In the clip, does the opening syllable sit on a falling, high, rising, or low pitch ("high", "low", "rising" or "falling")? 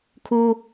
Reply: high